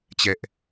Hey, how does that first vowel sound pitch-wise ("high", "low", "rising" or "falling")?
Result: high